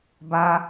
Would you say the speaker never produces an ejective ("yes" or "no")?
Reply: yes